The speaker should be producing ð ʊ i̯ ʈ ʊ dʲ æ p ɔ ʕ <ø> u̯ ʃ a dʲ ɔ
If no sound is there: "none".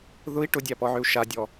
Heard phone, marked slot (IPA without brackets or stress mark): ø